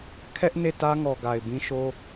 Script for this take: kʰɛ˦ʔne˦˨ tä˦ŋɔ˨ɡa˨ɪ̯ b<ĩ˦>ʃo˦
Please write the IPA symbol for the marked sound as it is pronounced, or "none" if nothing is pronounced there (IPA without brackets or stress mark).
ĩ˦